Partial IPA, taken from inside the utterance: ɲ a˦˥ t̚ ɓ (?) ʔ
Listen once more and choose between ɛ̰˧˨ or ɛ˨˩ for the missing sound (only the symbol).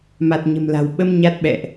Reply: ɛ̰˧˨